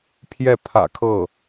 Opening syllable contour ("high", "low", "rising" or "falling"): falling